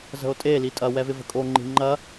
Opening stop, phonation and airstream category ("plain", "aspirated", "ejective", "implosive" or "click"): ejective